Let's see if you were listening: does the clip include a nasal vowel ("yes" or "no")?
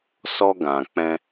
yes